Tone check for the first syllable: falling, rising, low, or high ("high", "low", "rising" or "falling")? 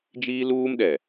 high